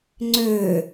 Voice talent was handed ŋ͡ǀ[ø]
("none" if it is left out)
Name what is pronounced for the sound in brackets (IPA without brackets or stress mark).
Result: ø